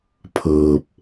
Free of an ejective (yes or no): yes